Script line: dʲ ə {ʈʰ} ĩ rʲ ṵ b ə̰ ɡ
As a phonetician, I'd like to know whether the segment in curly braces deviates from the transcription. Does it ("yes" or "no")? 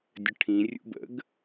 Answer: no